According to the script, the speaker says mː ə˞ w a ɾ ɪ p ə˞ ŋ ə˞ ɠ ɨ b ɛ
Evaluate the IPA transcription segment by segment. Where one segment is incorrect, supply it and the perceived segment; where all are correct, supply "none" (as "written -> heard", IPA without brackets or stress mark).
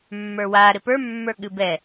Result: ŋ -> mː